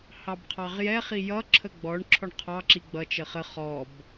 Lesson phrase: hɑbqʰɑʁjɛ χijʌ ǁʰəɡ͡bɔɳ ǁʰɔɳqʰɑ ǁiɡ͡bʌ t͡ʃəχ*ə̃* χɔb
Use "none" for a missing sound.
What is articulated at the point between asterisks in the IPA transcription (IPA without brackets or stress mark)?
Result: ə